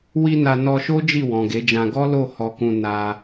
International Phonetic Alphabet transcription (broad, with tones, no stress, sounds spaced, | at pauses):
w i˧ n a˧ n ɔ˧ ʃ o˦ d͡ʒ i˦˨ w ɔ̃˨ ɡ e˨˦ d͡ʒ ã˧ ɡ ɔ˦ l o˦˨ h ɔ˧ k ũ˧ n a˧